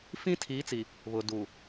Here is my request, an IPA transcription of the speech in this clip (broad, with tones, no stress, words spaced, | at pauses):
fĩ˦tʰiː˨˦t͡si˨ | βʊ˨ duː˨